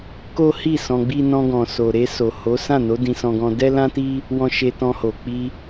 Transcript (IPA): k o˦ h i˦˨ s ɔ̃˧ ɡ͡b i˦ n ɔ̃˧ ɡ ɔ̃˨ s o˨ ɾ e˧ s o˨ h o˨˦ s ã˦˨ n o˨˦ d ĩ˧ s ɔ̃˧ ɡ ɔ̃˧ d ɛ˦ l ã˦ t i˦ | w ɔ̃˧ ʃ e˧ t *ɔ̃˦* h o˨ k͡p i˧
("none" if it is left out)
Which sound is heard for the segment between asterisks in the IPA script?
ɔ̃˧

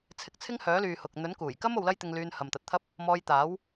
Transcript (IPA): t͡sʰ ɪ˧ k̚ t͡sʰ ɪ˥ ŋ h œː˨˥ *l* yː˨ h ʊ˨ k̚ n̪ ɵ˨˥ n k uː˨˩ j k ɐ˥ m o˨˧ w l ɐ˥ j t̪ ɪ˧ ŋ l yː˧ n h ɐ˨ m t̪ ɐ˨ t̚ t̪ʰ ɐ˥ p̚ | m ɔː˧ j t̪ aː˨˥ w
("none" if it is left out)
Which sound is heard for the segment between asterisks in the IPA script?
l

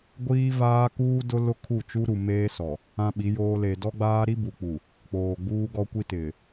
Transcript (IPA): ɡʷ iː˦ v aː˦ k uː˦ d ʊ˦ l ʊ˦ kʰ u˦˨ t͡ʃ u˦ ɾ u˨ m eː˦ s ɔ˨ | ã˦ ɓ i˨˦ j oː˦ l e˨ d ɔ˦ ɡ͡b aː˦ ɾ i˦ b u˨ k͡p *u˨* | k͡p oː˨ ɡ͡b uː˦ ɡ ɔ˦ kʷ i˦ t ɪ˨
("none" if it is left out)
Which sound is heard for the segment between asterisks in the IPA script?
u˨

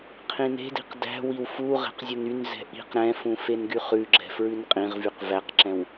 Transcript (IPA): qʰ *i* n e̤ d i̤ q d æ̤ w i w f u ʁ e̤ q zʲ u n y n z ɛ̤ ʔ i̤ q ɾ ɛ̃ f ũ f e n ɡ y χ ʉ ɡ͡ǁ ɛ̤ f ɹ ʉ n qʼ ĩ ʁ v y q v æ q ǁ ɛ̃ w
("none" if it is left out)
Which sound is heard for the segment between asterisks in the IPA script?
ĩ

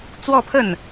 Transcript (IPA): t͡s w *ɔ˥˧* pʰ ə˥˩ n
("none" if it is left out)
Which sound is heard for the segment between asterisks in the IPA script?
ɔ˥˧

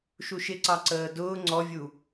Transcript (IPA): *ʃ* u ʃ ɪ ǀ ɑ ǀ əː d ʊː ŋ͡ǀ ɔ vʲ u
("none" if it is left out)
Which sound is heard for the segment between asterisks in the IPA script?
ʃ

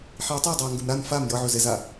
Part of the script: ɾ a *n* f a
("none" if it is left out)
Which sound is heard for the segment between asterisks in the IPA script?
n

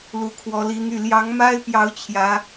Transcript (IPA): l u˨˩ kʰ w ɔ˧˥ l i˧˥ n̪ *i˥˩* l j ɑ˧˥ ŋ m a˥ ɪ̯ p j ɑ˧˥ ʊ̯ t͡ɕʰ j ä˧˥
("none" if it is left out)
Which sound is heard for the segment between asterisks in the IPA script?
y˥˩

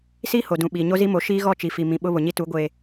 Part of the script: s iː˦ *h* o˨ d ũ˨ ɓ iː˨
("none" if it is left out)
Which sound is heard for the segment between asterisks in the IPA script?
h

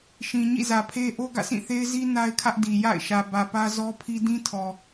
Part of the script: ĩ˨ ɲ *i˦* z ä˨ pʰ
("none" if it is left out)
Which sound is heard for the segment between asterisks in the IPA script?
ḭ˦˨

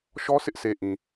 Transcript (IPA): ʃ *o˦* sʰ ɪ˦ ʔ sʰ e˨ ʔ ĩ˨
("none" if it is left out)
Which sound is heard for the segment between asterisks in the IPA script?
ɔ˦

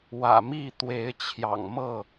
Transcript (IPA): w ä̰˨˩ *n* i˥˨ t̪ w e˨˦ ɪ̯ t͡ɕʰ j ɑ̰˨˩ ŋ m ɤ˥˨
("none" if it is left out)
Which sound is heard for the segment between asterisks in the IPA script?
m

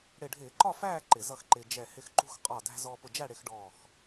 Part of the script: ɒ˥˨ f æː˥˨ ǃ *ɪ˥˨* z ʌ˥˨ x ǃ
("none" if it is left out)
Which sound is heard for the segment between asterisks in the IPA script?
ɪ˧˩˧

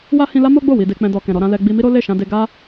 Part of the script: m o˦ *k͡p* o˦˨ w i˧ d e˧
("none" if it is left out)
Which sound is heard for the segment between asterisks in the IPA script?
ɡ͡b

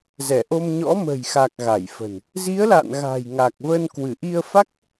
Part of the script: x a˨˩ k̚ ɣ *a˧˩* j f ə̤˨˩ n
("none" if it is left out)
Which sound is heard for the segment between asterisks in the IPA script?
a˧˩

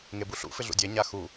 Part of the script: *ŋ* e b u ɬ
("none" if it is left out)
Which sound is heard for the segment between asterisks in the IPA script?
ŋ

